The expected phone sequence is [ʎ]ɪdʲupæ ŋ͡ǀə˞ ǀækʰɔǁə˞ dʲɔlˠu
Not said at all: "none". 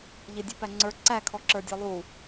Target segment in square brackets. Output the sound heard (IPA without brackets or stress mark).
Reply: ʎ